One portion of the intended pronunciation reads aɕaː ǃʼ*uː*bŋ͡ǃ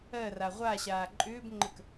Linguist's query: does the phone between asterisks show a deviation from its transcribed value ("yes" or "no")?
yes